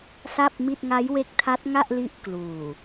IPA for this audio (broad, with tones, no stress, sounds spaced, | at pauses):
s a˥˩ p̚ m i˥˩ t̚ ŋ a˦˥ j w e˦˥ k̚ tʰ a˦˥ t̚ ŋ a˥˩ ʔ l i˦˥ ʔ k l uː˨˩